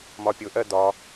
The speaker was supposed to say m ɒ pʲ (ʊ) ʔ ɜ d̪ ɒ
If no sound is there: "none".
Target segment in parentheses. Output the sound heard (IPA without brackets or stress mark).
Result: ʊ